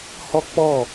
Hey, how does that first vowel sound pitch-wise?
high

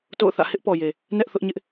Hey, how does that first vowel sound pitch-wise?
falling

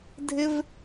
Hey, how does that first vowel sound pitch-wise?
high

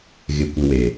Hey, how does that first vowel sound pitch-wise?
low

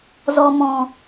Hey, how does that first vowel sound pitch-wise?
low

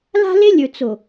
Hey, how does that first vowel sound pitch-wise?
high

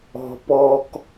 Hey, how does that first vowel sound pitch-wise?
high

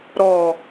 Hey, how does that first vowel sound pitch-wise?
low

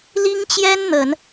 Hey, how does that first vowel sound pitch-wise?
high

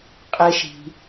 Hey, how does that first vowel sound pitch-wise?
high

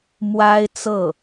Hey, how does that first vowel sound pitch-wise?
high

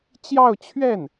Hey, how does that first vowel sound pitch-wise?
falling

